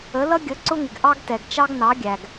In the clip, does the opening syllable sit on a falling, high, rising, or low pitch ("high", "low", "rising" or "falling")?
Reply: rising